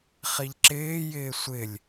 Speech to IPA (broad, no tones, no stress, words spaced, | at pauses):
χiʎǁɪːjɪː sʷɪlʲ